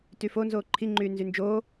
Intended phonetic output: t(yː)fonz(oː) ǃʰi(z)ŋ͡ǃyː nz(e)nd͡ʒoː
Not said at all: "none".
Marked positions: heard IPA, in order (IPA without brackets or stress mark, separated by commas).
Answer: yː, oː, none, y